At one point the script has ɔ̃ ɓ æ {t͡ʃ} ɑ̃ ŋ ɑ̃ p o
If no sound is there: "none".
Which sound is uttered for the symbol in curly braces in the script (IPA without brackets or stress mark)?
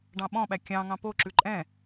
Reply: kʲ